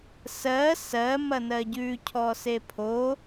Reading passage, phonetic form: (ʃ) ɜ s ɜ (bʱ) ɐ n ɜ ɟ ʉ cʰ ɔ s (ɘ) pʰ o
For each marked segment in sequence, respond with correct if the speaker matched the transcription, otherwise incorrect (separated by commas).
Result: incorrect, incorrect, incorrect